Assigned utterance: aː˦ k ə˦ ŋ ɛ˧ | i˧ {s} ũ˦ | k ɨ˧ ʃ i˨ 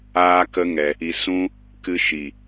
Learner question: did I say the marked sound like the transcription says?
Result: yes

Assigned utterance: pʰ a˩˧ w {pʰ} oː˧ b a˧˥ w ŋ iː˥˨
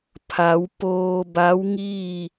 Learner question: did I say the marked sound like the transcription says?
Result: no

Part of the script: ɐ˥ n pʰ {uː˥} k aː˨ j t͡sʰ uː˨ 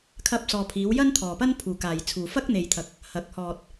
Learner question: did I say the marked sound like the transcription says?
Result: no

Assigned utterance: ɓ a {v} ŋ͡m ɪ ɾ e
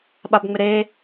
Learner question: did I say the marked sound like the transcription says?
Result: no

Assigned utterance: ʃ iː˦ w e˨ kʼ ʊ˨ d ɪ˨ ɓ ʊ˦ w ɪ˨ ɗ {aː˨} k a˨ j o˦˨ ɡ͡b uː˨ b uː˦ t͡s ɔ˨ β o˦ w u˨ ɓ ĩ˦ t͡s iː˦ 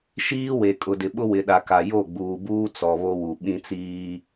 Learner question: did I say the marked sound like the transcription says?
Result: no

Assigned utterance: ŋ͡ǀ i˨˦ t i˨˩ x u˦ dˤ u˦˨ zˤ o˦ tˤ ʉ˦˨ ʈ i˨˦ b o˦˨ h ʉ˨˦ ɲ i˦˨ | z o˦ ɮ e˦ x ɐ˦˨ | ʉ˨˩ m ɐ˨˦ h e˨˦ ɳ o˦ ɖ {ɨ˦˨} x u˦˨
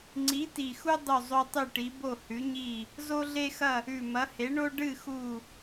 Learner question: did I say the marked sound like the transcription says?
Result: yes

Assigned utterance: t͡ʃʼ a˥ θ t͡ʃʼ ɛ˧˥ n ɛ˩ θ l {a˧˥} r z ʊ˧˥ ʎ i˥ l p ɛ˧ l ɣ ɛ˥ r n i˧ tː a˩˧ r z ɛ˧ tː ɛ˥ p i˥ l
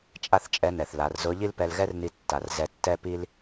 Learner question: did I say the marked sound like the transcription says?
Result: no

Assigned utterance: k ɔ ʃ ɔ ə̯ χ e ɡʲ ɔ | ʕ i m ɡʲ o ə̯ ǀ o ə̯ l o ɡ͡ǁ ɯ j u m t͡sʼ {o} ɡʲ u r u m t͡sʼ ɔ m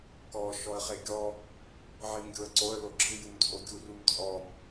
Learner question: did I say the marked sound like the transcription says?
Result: yes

